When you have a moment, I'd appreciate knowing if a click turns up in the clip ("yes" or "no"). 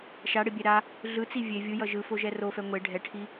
no